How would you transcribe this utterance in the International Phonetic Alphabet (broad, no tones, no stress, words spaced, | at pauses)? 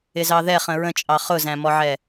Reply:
ɪzɑðɛ χə̃ɹə̃t͡ʃʼɑ χʊzæ̃mɔʕɛ